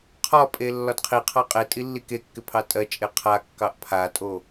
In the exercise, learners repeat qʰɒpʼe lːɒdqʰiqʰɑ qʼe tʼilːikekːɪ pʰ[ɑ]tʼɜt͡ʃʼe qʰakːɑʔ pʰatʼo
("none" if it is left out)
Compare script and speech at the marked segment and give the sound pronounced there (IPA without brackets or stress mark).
ɑ